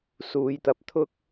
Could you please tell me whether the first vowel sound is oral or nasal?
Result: oral